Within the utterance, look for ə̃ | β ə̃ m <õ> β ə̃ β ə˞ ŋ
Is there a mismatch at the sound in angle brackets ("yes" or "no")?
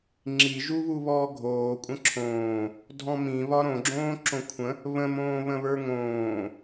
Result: yes